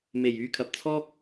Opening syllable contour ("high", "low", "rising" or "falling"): low